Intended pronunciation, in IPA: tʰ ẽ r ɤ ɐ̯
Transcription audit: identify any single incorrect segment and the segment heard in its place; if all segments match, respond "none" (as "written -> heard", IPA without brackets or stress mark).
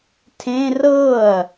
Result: none